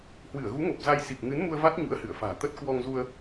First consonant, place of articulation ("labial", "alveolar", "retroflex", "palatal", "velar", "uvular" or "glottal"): glottal